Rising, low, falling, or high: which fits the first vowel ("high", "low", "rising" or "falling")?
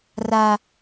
low